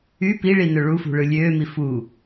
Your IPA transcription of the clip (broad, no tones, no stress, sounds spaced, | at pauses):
y p i ɭ i n ø ɭ u f ṳ ɭ ɯ lʲ øː m i f u